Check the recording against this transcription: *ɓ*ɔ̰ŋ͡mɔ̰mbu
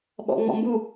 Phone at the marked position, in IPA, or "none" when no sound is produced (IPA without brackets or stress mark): ɓ